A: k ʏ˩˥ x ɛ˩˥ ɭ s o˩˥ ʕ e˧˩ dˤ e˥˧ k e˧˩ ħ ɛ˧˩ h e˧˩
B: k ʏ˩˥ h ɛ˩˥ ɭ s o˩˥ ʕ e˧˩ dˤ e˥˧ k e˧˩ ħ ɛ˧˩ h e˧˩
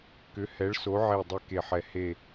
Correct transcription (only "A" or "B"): B